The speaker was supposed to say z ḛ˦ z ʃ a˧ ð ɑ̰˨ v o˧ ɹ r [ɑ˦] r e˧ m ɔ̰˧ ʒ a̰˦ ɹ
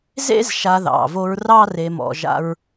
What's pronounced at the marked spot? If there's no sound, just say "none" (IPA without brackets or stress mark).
ɑ˦